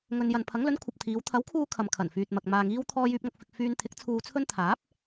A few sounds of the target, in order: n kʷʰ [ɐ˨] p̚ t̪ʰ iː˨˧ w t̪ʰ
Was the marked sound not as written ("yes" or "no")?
no